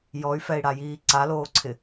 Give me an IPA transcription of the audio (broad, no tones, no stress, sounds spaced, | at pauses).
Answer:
j ɔ y̯ f ɛ i̯ ɽ a j iː ǀ a l oː ǀʰ ɪ